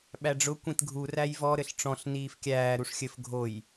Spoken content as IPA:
ɓ æ ɖ͡ʐ ʊ kʷ ĩ t ɡʱ u r æ j v ɔ ɾ ɘ ɬ ʈ͡ʂ ɔ̃ ɬ n iː f kʲ æː ɾ u ʂ xʲ ɘ f ɡʱ o j

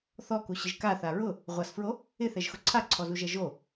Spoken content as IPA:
θ ɔ k u ɕ ɪ ʒ k a θ a ɹ ʊ | ʁʷ a s f ɹ o | ɪ θ ɛ ʒ x ʊ ǀʰ a ǀʰ ɔ z u ʒ ɛ ʒ o

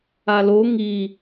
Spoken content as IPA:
a l o ŋ i

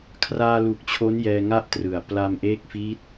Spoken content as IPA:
kʰ r aː˧ l u˨˩ k̚ t͡ɕʰ o˦˥ n j ɛː˧ ŋ a˥˩ ʔ t r ɯ˨˩ a̯ p l a˧ m ʔ eː˦˥ k̚ f i˦˥ t̚

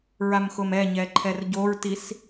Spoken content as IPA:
ɹ a m x ʊ m ɛ ɲ ɛ ǃʰ ɛ r ɟ o ɹ t i s

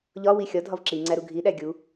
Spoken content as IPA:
ʎ ɒ w i xʲ ɒ dʱ ɒ v ǁ i ŋ͡ǀ æ ɾ u ɡʱ i ɗ æ ɡʲ u

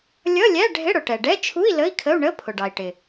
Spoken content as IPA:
lʲ ʌ˧˥˧ lʲ æ˧˥˧ ɖʱ ɪ˧˥˧ ɽ ʊ˩ ʈ ɛ˩ ɖ ɛ˧˥˧ t͡ʃʰ u˧˥˧ i̯ l ə˧˥˧ i̯ kʰ ə˧˥˧ u̯ ɳ ə˧˥˧ pʰ ʊ˩ ɖ ɑ˩ i̯ ʈ ɪ˩

